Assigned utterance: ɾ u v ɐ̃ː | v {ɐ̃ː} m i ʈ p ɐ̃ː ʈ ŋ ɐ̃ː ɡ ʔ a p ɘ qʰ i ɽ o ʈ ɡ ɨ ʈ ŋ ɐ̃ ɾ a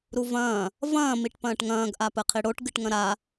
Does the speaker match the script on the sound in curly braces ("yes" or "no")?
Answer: yes